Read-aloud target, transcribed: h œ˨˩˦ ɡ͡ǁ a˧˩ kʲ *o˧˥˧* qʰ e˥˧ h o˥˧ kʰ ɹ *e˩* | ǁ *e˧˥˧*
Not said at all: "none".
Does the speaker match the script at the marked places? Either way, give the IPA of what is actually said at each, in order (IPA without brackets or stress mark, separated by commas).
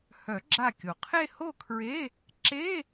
o˩, e˧˥˧, e˧˥˧